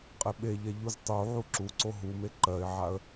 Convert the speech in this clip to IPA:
qʼ e ɓ e ʎ ɛ ʎ u z tˤ u ʕ u ǁ u ǀ o ɦ u m e ǃ ɜ ɪ̯ ʕ a ə̯

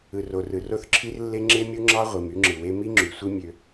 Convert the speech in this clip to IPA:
ɯ˨ r o˨ r ɯ˨ r o˦ θ ǁʰ i˦ r lː e˦ ŋ͡ǁ e˦ mʲ u˦ ŋ͡ǁ ɑ˦ ʁʷ i˨ m y˦ ŋ͡ǁ ɯ˨ w e˦ m i˦ ŋ͡ǁ y˨ sʷ i˦ mʲ ø˦

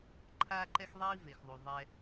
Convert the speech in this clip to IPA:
ǃʰ aː˥ ǃ ɛ˥ x ðˤ iː˥ v e˩ x ðˤ u˩ ðˤ ɛ˧

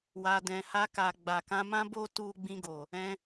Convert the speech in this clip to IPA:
w a˨ d ɛ̃˨ h a˧ k a˨ ɡ͡b a˨ k ã˨˦ m ã˦ b o˦ t u˦ ɡ͡b ĩ˧ ɡ o˨ | ɛ̃˧

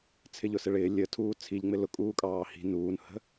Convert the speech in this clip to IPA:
t͡sʰ ɪ ʎ ʊ s ɪ ɭ ɪː lʲ ə tʰ uː t͡sʰ i ʎ ŋ͡m ɪ l ʊ kʼ uː kʼ ɑː h i̤ n uː n h ə̤

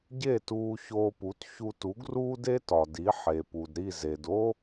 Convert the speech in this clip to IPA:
ɟ e˥˩ t uː˧ ç oː˧ p u˩˥ t ç u˧ t u˩˥ ɡ r uː˥ d e˥ t ɒ˩ d i˩˥ ħ e˩ p u˩ d ɾ i˥˩ z e˩ d o˥

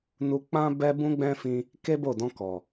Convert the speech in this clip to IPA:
n u˧ k͡p ã˦ b ɛ˦ b ũ˦ ɡ͡b ɛ̃˦ f ĩ˧ | k e˦ b o˦˨ d ɔ̃˧ k ɔ˨

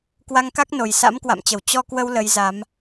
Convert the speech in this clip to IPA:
k w a˧ ŋ k a˦˥ k̚ n o˨˩ j s a̰˧˥ m k w a̰˧˨ m t͡ɕ ə˧˩ w t͡ɕ ɔ˧ k w ə˧ w l ə˨˦ j z a˨˦ m

